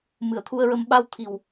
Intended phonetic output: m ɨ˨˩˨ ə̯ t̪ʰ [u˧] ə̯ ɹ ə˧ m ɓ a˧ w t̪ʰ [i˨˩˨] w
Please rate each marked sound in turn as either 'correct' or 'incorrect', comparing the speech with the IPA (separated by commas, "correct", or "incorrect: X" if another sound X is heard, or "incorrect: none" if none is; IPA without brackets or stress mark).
correct, incorrect: i˨˩